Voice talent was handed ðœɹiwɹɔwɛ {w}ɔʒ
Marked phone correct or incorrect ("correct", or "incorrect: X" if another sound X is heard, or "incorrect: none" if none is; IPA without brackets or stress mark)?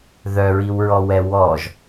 correct